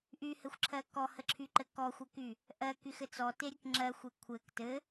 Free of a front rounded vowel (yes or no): no